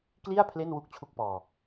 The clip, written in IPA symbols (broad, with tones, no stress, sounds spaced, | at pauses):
k l i˥˩ a̯ pʰ l e˥˩ n w u˦˥ k̚ t͡ɕʰ u˦˥ k̚ p ɔː˧